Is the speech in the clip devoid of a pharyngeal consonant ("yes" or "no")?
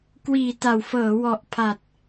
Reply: yes